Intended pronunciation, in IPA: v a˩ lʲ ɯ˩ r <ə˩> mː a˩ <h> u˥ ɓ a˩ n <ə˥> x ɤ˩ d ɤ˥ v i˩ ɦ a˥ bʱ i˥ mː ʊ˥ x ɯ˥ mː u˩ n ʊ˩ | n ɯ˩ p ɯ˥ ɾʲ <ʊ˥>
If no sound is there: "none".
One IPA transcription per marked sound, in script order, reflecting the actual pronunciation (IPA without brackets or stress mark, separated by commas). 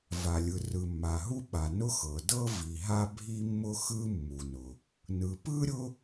ɯ˩, ɦ, ʊ˥, ʊ˥